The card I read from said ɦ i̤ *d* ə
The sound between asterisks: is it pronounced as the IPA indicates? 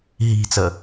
no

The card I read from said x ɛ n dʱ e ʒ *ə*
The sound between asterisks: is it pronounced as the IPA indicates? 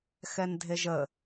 yes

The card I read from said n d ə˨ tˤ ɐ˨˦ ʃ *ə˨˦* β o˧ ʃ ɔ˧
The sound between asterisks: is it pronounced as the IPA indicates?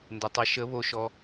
yes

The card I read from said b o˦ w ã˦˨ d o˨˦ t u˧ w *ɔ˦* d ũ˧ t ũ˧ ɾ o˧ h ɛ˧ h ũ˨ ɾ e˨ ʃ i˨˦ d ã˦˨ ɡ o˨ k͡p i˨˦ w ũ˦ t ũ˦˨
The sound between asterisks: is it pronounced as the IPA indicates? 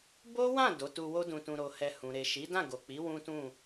no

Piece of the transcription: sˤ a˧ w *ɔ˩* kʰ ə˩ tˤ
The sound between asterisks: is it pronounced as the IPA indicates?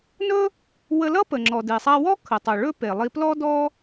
no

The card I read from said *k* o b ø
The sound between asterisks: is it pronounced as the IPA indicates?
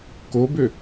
yes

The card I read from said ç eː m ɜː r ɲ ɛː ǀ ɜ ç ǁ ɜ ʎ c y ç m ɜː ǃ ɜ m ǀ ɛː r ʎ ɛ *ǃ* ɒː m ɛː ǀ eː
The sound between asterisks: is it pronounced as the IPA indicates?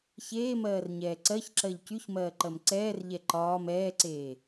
yes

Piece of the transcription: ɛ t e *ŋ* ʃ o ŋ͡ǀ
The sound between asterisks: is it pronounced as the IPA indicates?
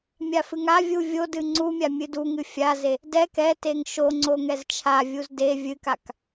yes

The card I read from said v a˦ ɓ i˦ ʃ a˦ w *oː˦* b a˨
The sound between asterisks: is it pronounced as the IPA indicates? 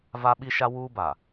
no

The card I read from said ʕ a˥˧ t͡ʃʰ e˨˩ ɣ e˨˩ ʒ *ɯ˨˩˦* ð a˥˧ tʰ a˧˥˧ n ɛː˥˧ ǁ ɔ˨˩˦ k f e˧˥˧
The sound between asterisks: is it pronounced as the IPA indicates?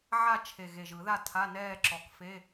yes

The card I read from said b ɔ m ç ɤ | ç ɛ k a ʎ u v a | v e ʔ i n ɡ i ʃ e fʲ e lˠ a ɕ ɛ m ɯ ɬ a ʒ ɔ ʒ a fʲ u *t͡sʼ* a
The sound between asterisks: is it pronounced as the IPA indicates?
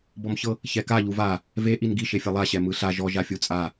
yes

